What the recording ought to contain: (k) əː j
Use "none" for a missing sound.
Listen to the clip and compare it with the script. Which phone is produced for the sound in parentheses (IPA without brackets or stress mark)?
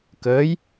k